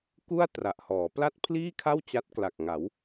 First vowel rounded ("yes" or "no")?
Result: yes